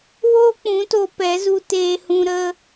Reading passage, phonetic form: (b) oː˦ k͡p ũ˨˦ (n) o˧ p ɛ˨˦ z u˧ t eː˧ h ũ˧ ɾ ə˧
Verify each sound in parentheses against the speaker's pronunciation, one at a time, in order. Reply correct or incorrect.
incorrect: w, incorrect: t

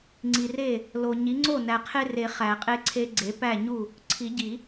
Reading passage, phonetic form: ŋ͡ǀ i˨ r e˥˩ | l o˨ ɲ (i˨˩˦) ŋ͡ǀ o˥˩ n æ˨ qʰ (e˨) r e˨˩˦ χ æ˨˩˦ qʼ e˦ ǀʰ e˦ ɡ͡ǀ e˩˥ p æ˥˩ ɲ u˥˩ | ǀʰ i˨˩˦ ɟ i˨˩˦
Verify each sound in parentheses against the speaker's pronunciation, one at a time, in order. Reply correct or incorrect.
incorrect: i˩˥, incorrect: e˦

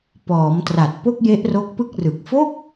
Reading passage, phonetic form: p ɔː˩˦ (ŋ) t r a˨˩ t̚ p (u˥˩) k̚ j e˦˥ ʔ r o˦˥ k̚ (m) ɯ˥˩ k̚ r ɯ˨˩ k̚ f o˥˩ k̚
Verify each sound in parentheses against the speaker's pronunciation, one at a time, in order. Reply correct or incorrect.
incorrect: m, incorrect: o˥˩, incorrect: p

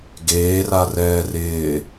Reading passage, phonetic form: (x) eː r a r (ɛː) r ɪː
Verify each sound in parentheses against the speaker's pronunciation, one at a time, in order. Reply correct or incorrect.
incorrect: ɡ, correct

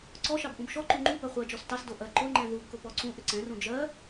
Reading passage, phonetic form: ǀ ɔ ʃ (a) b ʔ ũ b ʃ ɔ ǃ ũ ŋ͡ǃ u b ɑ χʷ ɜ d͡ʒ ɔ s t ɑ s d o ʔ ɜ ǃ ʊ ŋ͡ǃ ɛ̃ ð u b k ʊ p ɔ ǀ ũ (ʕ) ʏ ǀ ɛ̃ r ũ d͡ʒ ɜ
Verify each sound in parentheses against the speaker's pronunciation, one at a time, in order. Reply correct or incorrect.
incorrect: ɑ, incorrect: ʔ

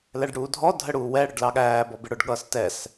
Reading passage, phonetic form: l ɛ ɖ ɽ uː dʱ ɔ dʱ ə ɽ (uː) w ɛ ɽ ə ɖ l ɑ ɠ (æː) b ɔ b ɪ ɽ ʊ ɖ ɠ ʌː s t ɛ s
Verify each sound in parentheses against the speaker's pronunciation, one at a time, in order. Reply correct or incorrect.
correct, correct

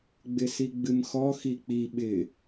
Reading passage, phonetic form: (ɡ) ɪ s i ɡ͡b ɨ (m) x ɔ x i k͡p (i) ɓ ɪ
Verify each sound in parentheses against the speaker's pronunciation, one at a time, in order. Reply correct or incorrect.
incorrect: ɡ͡b, correct, correct

